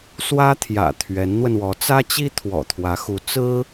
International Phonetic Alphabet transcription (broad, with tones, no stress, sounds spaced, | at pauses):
s w ä˥ t̪ʰ j ä̰˨˩ t̪ʰ ɥ ɛ˧˥ n n̪ w ə˧ n w ɔ˧˥ t͡s ä˥ t͡ɕ i˥ t̪ʰ w ɔ̰˨˩ t̪ʰ w ä˧˥ x u˧˥ t͡s ɹ̩˥